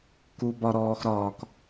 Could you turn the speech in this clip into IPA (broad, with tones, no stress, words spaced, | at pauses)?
ku˧bɒ˧ɾɔː˧x ɾɒː˧k